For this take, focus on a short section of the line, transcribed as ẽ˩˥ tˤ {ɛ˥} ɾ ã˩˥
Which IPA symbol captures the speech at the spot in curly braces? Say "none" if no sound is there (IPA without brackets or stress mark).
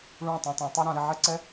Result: ɛ˥